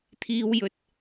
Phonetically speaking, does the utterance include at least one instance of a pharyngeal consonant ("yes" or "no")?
no